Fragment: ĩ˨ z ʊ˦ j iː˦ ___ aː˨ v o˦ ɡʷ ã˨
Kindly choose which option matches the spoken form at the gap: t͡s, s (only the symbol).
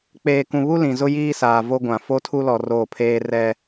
s